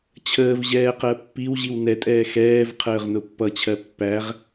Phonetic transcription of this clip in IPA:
t͡ɕʰ əː v ʑ ɛː q ɜ pː i w ʑ i w n ɛ tʼ ɛː x ɛː v qʰ əː ʁ n ʊ pː ʌ t͡ɕʰ ɜ pː æ ʁ

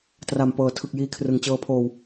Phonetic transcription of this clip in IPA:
t r a˨˩ m p ɤː˨˩ tʰ ɯ˨˩ k̚ j iː˧ kʰ r ɯ˨˩ ŋ t͡ɕ ɤː˧ pʰ oː˧ w

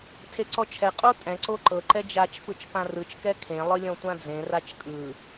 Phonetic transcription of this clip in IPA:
tʰ e ǀ ɔ t͡ʃʰ ɛ qʼ o tʼ ɛ̃ ǀ o ǃ ɤ ǃ ɛ d͡ʒ a t͡ʃ f ɯ t͡ʃ p ã r ɯ t͡ʃ k ɛ kʰ ẽ lˠ ɯ lʲ ɔ̃ tʷ ã d͡z ẽ r a t͡ʃ kʼ ɯ

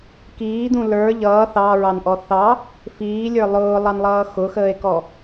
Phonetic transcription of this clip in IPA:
k iː d̪ ũ l ə˞ ʎ ʌː θ ɑ ɹ ɑ n ʔ ɔ θ ɑ | f iː lʲ ə˞ lˠ ʊː lˠ ɑ n lˠ ʌː x ʊ x əː e̯ k ɔ

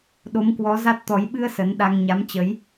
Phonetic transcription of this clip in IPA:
ɗ o˨˦ m k w ɔ˨˦ z a˦˥ t̚ t̪ ɔ˨˦ j ɓ ɨ˧ ə̯ s ə˨˦ n ɗ a˧ ŋ ɲ a˨˦ m t͡ɕ ə˨˦ j

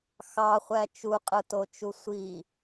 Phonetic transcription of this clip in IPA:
x ɑ χʷ æ t͡ʃ u qʼ ɯ t o t͡ʃ u sʷ i

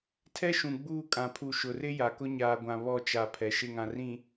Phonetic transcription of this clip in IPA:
tʰ ɛ˦ ʃ ũ˨ ɡ͡b uː˦˨ kʼ ã˨ pʰ u˨ ʃ ʊ˨ r ɪ˦ j a˨ k ʊ˦ ɲ aː˨ ɡʷ ã˨ β ɔ˦˨ t͡ʃ a˨ pʰ ɛ˨ ʃ ɪ˦˨ ŋ ã˨ r ĩ˨

